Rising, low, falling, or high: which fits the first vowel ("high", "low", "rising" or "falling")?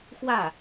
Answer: falling